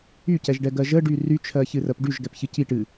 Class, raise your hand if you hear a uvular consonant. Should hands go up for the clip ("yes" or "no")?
no